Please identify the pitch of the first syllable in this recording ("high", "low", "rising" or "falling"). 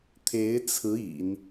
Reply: rising